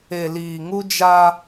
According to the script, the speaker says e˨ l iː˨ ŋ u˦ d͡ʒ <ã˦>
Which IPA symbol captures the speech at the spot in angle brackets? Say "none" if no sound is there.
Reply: a˦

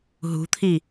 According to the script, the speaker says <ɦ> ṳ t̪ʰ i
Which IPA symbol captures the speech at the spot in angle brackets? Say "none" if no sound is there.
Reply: ɦ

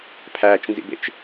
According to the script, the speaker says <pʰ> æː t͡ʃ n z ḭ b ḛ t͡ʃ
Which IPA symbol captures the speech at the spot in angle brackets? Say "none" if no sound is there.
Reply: pʰ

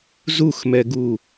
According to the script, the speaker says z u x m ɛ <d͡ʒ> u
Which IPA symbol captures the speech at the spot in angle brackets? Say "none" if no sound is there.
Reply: ɡ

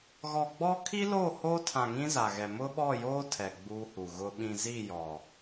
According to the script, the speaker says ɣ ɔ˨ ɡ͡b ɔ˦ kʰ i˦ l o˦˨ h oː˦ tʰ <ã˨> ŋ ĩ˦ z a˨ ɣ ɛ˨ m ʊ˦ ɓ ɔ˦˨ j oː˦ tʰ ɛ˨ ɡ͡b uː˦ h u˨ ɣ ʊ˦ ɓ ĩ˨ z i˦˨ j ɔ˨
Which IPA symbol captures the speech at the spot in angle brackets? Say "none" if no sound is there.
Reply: ã˨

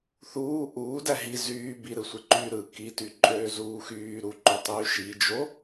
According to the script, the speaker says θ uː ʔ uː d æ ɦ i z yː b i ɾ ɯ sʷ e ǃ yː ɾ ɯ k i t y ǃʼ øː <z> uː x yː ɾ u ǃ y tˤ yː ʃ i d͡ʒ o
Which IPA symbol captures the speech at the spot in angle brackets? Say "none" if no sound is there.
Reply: z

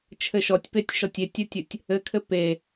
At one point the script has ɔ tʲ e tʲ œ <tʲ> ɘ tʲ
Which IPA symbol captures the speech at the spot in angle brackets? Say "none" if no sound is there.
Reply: tʲ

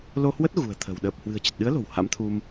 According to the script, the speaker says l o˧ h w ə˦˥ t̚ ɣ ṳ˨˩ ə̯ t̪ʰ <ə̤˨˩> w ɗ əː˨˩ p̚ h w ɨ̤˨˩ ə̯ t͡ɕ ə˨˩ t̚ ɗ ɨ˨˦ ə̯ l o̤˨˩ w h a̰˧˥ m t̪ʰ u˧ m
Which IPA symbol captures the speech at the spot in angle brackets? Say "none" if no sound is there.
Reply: ə̤˨˩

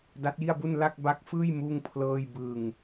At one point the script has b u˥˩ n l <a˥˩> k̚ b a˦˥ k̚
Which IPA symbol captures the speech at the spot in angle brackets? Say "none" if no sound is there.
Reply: a˥˩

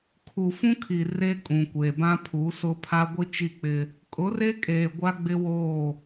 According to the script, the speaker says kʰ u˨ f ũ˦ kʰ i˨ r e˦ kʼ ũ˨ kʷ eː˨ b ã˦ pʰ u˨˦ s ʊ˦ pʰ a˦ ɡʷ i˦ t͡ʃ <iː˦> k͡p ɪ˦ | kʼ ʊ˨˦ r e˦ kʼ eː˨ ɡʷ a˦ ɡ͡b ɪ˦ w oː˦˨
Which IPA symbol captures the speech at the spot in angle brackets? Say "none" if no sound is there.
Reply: i˦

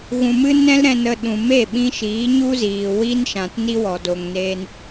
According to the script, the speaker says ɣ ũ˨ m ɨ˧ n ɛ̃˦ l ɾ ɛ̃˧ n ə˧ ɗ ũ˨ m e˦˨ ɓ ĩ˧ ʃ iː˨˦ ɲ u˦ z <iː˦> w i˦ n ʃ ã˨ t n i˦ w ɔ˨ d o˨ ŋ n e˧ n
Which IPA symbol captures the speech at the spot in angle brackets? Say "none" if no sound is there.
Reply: iː˨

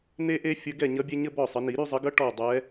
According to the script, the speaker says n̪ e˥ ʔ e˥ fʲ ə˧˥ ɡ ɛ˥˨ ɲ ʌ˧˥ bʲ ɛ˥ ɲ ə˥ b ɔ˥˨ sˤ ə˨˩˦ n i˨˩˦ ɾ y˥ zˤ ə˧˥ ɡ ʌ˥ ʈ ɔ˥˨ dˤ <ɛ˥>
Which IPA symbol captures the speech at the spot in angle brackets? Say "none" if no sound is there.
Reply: ɛ˧˥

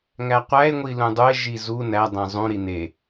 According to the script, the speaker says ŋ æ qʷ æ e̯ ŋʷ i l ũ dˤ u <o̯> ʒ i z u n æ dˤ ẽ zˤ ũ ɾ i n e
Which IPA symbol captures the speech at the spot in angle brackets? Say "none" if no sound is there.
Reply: e̯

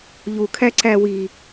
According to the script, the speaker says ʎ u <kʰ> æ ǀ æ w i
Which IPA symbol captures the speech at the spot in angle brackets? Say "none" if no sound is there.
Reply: kʰ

